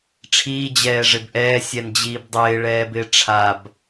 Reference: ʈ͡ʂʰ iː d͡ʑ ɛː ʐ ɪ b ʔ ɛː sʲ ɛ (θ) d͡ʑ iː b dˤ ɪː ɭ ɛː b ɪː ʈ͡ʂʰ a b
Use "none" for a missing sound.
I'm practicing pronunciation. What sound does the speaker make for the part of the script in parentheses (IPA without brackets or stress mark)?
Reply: n